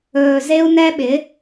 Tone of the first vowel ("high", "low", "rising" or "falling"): low